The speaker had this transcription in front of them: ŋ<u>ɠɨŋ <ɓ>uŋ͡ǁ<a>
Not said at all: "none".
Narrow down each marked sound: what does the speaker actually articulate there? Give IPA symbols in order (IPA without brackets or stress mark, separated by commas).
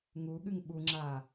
u, ɓ, a